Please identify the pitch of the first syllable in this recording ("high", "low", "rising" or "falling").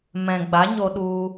low